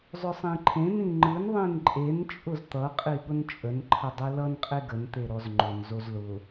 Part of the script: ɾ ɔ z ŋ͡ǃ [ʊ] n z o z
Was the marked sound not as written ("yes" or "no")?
no